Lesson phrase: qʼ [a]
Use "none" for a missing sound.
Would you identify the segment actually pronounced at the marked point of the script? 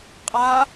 a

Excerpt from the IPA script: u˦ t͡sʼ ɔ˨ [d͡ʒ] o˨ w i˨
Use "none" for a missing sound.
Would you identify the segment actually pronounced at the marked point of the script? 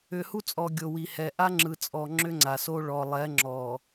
ɡʲ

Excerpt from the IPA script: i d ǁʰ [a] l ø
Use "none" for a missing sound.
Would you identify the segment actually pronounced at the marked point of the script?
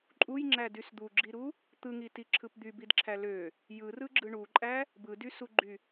æ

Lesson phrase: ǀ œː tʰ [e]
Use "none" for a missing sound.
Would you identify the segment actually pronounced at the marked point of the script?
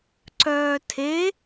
e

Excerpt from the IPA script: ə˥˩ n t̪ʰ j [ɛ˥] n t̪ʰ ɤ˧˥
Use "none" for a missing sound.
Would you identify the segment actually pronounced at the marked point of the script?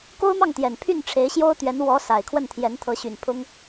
ɛ˧˥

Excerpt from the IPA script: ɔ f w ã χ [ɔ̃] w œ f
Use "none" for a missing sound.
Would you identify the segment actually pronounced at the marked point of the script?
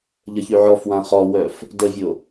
ɔ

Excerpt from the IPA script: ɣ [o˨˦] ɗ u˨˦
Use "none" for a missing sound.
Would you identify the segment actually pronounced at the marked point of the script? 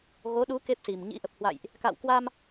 o˨˦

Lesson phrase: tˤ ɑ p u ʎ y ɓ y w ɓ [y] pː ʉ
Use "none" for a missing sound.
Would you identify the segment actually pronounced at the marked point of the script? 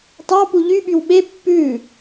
e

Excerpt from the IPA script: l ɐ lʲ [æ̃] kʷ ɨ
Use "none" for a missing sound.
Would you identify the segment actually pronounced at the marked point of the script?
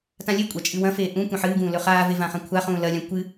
ã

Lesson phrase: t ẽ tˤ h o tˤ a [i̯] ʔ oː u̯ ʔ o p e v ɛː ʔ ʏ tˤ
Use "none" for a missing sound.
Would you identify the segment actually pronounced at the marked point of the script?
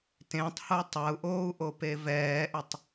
u̯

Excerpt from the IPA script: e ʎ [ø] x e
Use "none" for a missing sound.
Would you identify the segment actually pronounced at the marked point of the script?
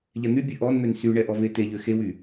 ø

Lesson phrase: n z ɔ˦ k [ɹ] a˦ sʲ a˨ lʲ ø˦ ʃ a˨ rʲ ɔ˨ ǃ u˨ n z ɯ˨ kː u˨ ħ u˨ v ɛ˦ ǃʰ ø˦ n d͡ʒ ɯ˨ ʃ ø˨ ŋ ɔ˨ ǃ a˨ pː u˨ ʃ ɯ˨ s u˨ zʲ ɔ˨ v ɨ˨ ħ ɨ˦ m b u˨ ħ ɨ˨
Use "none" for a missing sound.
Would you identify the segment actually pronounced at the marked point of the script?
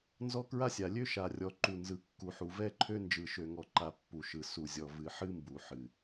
ɹ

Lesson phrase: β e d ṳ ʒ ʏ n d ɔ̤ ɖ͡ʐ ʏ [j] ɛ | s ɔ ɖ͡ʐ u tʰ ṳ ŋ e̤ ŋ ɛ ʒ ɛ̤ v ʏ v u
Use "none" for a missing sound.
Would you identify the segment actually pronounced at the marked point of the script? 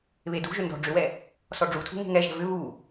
w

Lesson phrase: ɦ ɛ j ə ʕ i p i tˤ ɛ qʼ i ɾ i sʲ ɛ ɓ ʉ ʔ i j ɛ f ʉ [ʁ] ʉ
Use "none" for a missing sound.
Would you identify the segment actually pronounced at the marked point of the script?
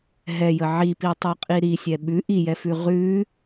ʁ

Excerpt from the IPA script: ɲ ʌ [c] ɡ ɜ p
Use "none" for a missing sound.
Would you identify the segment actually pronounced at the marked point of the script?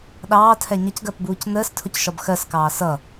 c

